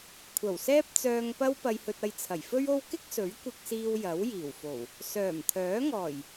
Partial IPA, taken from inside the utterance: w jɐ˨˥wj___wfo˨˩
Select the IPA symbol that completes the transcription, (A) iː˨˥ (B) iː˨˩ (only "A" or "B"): B